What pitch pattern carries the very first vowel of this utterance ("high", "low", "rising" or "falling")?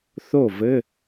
falling